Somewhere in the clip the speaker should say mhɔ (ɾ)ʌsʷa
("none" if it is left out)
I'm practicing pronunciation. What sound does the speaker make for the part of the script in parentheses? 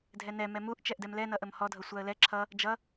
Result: dʱ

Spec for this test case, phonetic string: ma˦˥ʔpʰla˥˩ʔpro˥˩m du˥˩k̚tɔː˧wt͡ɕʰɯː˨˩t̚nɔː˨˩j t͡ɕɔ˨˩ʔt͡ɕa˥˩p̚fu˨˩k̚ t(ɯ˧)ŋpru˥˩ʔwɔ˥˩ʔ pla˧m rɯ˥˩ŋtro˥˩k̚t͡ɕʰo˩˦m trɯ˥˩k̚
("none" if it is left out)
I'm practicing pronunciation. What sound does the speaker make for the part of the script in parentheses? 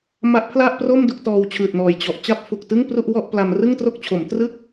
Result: ɯ˥˩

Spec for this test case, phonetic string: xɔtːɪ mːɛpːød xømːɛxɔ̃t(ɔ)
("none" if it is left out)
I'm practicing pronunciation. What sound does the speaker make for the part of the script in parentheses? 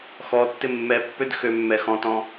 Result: ɔ̃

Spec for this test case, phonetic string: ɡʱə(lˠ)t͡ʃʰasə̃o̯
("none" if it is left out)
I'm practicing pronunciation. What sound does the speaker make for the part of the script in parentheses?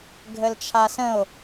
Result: l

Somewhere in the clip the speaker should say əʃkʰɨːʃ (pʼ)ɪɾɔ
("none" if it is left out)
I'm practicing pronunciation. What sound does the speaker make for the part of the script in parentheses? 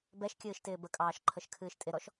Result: tʼ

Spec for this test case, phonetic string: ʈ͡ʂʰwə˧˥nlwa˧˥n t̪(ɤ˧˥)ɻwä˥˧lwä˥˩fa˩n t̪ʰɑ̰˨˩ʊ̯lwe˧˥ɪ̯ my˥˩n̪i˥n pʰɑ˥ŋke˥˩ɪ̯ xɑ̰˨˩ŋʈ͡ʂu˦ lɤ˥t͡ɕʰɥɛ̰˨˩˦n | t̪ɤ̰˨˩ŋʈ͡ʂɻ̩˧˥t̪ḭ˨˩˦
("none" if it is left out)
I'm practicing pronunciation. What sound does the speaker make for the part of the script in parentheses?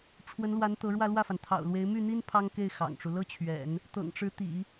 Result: ɤ˧˥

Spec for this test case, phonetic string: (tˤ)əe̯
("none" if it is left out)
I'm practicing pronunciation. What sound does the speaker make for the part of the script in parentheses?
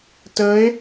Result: t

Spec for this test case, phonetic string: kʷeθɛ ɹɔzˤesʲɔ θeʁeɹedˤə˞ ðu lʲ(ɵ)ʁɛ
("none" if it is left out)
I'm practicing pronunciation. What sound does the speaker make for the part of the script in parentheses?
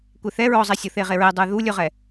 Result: ɵ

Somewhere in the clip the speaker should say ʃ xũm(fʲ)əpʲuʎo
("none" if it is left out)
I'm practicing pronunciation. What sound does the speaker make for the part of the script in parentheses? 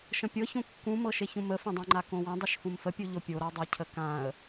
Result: f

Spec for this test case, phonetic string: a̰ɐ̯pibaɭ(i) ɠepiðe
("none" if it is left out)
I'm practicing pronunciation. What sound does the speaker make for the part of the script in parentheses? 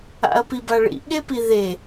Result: ḭ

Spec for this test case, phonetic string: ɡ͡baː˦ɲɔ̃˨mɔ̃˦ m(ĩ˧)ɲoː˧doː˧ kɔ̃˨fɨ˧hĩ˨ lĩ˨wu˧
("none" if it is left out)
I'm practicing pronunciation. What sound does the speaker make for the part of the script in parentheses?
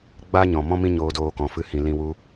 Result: ĩ˦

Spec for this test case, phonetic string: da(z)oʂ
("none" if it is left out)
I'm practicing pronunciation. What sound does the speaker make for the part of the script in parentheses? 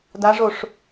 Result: ʐ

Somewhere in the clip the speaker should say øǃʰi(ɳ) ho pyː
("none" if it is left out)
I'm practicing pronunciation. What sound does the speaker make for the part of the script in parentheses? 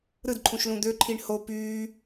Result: ɳ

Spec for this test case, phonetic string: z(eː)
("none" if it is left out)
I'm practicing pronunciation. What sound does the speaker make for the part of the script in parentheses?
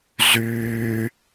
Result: yː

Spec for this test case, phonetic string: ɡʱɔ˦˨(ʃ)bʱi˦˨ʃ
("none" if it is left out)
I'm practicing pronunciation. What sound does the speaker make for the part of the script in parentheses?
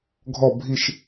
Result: none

